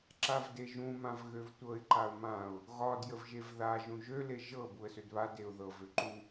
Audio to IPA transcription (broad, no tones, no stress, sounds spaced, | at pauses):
ǁ a v d e ʒ ũ m ã v ɣ ø v tʷ ɤ ɪ̯ ǃ a ʊ̯ m ã ʊ̯ | ɣ ɒ d j ə v ʒ e v ð a ʒ ũ ʒ ø l e ʒ ɤ b u ə̯ s ø d β a d e ʊ̯ ð ɤ v ø ǃ u